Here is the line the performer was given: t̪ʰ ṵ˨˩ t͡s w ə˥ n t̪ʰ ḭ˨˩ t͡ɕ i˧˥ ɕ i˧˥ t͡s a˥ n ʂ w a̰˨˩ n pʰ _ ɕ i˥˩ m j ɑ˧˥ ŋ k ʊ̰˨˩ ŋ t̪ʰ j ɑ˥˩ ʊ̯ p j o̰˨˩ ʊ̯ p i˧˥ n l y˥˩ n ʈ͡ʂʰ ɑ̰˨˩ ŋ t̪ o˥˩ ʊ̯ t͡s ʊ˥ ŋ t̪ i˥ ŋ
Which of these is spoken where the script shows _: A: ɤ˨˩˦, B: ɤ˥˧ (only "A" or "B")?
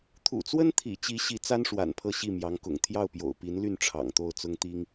B